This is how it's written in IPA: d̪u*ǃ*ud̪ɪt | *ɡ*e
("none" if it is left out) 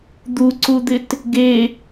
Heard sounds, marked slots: ǀ, ɡ

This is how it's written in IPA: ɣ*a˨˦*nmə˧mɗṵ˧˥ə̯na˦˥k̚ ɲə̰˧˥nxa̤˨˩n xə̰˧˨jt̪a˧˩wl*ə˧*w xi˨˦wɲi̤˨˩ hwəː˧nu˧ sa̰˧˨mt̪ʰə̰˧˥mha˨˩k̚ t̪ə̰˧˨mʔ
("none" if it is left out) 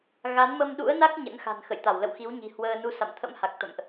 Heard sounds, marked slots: a˨˦, ə̰˧˨

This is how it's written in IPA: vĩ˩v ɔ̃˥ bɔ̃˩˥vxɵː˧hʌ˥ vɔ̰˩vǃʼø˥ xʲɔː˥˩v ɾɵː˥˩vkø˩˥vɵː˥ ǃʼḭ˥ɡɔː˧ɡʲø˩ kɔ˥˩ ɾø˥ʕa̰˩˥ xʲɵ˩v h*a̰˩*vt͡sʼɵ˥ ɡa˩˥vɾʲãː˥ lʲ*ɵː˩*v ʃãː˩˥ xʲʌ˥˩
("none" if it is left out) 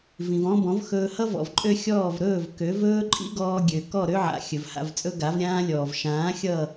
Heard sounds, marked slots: a̰˥˩, ɔː˩

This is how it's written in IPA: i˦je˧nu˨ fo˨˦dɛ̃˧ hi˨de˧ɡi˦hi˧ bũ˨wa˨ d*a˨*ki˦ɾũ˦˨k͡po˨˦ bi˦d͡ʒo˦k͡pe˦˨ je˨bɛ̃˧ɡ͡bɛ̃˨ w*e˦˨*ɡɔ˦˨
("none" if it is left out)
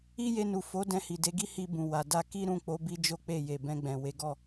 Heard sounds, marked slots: a˧, e˨˦

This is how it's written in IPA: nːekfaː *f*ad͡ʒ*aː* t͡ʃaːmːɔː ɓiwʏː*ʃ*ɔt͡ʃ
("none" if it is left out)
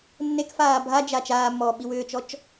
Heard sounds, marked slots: bʱ, a, t͡ʃ

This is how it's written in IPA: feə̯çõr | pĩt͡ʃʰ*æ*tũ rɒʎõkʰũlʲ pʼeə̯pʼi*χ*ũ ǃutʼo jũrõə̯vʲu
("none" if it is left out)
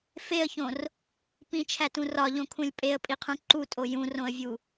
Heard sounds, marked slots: æ, qʰ

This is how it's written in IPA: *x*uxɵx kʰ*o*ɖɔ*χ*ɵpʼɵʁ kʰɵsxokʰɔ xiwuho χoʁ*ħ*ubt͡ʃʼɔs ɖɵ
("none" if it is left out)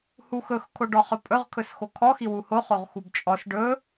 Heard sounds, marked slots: h, o, χ, x

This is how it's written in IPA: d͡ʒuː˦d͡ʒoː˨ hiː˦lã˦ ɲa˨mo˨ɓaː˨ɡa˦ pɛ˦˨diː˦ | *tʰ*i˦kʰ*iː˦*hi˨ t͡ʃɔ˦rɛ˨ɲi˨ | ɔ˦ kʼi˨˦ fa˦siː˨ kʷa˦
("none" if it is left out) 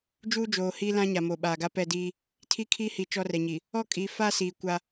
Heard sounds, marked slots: tʰ, iː˦

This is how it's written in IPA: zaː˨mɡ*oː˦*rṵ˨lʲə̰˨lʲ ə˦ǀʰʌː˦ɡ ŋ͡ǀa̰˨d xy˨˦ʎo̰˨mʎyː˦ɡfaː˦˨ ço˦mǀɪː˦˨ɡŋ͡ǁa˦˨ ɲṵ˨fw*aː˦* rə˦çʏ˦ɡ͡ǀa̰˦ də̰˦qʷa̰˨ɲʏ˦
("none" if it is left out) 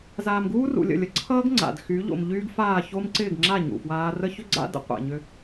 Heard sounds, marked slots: uː˦, aː˦

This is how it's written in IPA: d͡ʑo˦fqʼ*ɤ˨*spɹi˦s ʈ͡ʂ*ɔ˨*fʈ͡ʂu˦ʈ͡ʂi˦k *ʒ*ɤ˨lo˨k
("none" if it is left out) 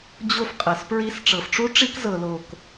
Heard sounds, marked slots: ɤ˨, ɤ˨, z

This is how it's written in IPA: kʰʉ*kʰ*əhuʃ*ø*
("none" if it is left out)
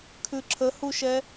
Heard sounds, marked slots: ǁʰ, ɛ

